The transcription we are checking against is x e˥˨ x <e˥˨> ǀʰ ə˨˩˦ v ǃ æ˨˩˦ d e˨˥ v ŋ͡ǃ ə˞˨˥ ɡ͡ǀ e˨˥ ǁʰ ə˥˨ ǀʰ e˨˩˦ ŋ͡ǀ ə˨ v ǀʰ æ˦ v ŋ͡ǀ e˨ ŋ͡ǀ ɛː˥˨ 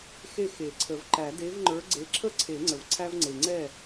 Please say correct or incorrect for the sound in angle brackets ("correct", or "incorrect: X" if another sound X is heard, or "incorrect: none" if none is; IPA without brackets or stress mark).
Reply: incorrect: e˨˩˦